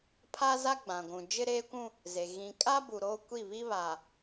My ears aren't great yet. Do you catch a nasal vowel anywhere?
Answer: yes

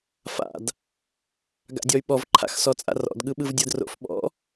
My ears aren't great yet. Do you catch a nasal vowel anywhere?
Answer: no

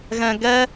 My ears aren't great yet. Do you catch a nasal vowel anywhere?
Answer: yes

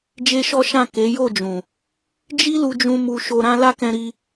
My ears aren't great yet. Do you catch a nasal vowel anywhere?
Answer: yes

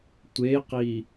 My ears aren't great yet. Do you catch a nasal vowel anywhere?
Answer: no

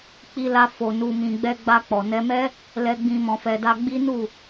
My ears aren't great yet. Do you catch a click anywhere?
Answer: no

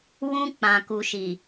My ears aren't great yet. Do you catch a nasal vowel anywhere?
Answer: yes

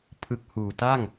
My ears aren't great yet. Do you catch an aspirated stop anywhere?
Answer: yes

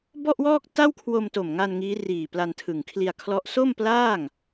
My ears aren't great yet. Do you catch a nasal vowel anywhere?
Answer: no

